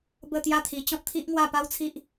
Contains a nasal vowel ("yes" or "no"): yes